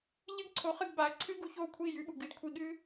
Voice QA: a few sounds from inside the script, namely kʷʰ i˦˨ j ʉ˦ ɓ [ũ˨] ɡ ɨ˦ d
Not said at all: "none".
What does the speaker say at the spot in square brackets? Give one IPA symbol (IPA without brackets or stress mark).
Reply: u˨